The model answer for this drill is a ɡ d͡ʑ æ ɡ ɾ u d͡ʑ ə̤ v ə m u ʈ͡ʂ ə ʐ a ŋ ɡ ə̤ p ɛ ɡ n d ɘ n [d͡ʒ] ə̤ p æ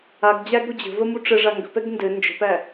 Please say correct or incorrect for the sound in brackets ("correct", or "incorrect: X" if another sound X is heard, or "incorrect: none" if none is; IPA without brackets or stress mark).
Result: correct